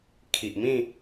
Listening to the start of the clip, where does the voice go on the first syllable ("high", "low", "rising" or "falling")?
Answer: low